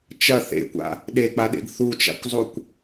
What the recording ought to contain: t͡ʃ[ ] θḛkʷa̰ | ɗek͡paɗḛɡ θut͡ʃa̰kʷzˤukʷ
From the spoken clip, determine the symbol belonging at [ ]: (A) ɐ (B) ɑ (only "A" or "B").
A